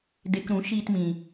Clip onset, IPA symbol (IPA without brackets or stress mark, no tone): d